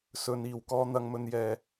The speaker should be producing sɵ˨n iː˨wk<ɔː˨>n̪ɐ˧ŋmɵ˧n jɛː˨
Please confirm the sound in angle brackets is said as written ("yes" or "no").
no